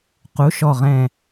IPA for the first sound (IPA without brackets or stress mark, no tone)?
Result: q